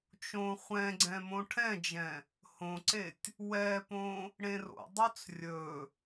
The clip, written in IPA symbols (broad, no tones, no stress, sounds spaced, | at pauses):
t͡ʃ õ χʷ ɛ̃ ɡ͡ǀ ɛ̃ m õ ʈʰ ɛ̃ d͡ʒ ɛ̃ | h õ ǀ e tʲ | w ɛ p õ | ɽ ẽ r o̰ dˤ ɵ t͡s rʲ ɵ